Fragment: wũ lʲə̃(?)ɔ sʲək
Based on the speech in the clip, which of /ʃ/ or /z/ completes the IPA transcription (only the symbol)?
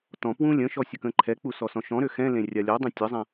ʃ